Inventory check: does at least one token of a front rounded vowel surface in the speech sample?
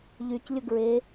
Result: yes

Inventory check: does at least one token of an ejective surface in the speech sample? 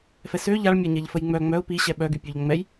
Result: no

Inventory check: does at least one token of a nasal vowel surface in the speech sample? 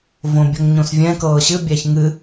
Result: yes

